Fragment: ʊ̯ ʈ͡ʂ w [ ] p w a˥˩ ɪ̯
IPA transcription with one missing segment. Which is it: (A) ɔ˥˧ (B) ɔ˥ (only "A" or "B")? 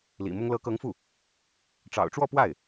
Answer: A